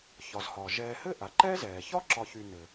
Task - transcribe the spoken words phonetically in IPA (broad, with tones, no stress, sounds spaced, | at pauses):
ç ɒ˩ z h ɒː˩ ʒ ɛː˨ h ɘ˥ ʔ a˩ ǃ ɛ˥ z ɛː˩ ç ɒ˥ ǁ ɒ˨ ç y˨ n ɘ˩